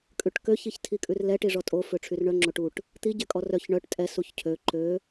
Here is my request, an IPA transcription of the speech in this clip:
kʼ ʉ ʈ k ø ç i ç tʰ i kʼ ʉ r l ɛ ʈ i ʐ ɔ tʼ o f ø ʈ͡ʂʰ y r ɳ œ ŋ͡ǁ o ʈ u ʈ | t̪ i ɟ ɛ kʼ ɔ r œ ç ɳ œ ʈ tʼ ɛ s u ç cʰ ø ǃ ø

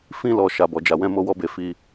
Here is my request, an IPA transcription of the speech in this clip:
f ĩ˧ l ɔ˨ ʃ a˨ b ɔ˨ d͡ʒ a˨ w ɛ̃˧ m o˧ w ɔ˧ b e˨ f i˧

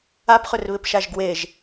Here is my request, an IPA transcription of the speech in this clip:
a p χ ʏ r β ɪ p ʃ a ʒ ɡ w e ʒ

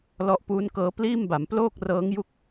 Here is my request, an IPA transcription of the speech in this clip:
l ɔ˥˩ ʔ p uː˦˥ n k ɤː˦˥ p l iː˥˩ m b a˩˦ m p l oː˥˩ k̚ r ɤː˦˥ ŋ j u˥˩ k̚

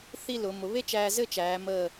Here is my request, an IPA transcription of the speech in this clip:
θ i˥˧ l ʊ˩˧ m ʊ˩˧ β e˥ t͡ʃ æː˧ z ɘ˥˧ t͡ʃ æː˩˧ m əː˧˩

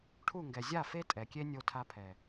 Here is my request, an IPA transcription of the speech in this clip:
ʈʰ u˦˨ ŋ ɡ ɛ˨ zʲ a˦˨ f e˦ tʼ ɛ˨ kʲ e˦ nʲ o˦ tʰ a˦ pʰ ɛ˨

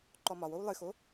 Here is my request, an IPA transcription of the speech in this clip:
ǃ ɔ m ɒ w o w lˠ ɨ x o

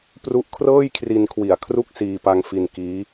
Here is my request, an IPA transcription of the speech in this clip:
p r u˦˥ ʔ kʰ r ɤː˥˩ j kʰ r i˧ n kʰ w i˨˩ a̯ kʰ r u˥˩ k̚ s iː˧ p a˧ ŋ f i˧ n k iː˦˥

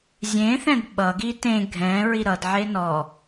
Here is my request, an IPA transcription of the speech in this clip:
zʲ ẽ θ ɛ̃ d ɓ ʌ ɡ i t ẽ ɡʱ ɛ̃ ɹ i ɾ ʌ d ʕ e n ɔ

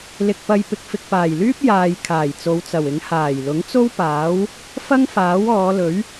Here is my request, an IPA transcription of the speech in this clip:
l ɪ˧ k̚ p ɐ˧ j p ɪ˨ k̚ f ɪ˨ k̚ p aː˨˩ j l yː˥ p̚ j aː˨ j kʰ aː˨˩ j t͡s o˨˧ w t͡s ɐ˨˩ w ɪ˨˥ ŋ h aː˨˩ j l ʊ˨˥ ŋ t͡s o˥ w p aː˨˥ w | f ɐ˥ ŋ f aː˨˥ w ɔː˨˧ l ɵ˨˥ ɥ

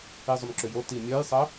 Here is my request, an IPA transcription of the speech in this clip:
i zˤ ʏ m ǁ ʏ j o t i mʲ œ j sˤ ə

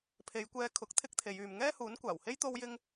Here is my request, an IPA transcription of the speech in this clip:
pʰ e˨˧ j kʷ ɛː˧ kʰ ʊ˨˥ k̚ t̪ʰ ɪ˥ k̚ t̪ʰ e˨˧ j yː˨ m ŋ ɛː˥ h uː˨˥ n kʷ aː˨˩ w h e˥ j t̪ o˥ w j ɪ˥ ŋ

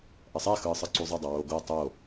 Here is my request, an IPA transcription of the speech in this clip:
ʔ ʌ sˤ ɛ x ɯː sˤ ɯ ǀ u zˤ e dˤ ʌ w oː ɡ o tˤ o

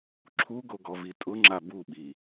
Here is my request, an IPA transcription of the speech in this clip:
ǁʰ u ɡ o ɡ ɔ v i tʼ ʊ ŋ͡ǁ a b u ɓ i

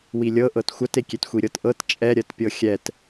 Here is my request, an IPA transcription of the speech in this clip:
w i lʲ ɤ ʔ ɤ t xʷ ɐ t e kʲ e t xʷ i ɾʲ ɤ t ʔ ɤ t t͡ʃʼ ɛ ɾʲ ɜ t pʲ ɤ xʲ ɛ t

